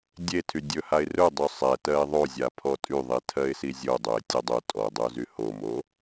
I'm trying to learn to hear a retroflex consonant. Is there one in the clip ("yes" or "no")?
no